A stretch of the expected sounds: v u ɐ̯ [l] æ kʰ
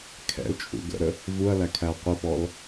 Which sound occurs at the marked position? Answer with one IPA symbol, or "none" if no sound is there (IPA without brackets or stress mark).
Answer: l